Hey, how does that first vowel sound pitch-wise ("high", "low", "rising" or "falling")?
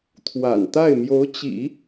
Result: low